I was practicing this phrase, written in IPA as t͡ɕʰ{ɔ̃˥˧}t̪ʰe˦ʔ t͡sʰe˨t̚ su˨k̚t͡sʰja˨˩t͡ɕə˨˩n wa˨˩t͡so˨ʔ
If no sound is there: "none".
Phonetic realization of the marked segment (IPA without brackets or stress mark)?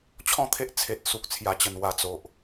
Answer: ɔ̃˥˧